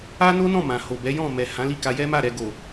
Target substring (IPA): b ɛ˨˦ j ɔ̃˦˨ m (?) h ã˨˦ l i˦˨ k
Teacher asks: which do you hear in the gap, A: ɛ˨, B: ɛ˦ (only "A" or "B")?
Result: A